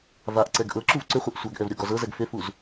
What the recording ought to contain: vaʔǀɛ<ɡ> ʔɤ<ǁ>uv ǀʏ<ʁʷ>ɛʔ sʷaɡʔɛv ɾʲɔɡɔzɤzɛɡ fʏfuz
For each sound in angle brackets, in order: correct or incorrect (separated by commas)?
correct, correct, incorrect